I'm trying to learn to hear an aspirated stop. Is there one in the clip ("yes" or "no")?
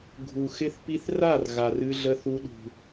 no